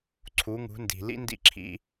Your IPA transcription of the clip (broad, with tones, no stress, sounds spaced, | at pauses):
ǀʰ u˨˦ ŋ ṳ˨˦ n d i̤˨ l ḭ˦ n d ḭ˦˨ ǁʰ ḭ˦